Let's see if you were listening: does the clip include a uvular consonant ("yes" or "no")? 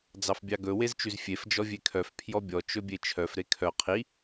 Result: yes